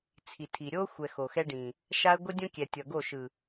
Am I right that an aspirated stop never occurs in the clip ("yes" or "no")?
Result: no